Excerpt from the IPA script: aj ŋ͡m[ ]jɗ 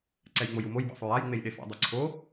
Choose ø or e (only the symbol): e